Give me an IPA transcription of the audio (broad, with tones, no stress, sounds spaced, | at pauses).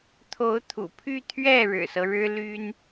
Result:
t̪ʰ o˧˥ ʊ̯ t̪ʰ ṵ˨˩ pʰ y˥˧ t̪ʰ ɥ ɛ˥˩ ɻ ɻ̩˨˩ s ɤ˦ ɻ ɻ̩˥ l y˥ n